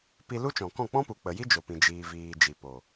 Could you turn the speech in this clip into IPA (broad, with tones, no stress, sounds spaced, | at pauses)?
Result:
p i˧ l u˦ t͡ʃ ɔ̃˨ k ɔ̃˦˨ k͡p ɔ̃˦ p u˨ k͡p ə˨ j i˦ d͡ʒ o˨ p ĩ˨ d͡ʒ iː˨ v iː˨ d͡ʒ i˨ p o˨